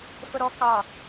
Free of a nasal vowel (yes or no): yes